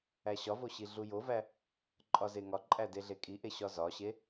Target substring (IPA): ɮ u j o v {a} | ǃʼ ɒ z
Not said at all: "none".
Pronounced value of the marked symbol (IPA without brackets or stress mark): æ